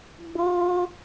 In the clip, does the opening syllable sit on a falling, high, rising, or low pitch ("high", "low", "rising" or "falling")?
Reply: high